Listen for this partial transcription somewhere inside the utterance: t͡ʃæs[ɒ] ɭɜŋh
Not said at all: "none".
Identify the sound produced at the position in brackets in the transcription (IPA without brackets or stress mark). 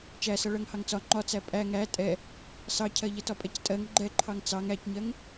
ʌ